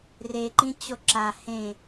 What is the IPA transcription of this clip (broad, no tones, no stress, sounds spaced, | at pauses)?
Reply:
r e ǃ ĩ t͡ɕ o ǁ a h ẽ